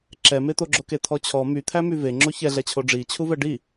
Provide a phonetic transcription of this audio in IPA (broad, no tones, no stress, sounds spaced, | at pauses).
ǁ ɛ m e t̪ o ɡ͡ǁ o k e t̪ʰ ɔ t͡ɕʰ ɔ m y t̪ʰ æ m y v e ŋ͡ǁ o ç ɛ ɮ ɛ t͡ɕʰ o ɖ͡ʐ i t͡ɕʰ u v ɛ ɖ i